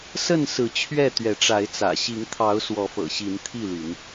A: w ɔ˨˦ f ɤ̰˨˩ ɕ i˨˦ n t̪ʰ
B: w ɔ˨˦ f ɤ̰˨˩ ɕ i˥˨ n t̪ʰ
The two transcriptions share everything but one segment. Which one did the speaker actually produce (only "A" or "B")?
A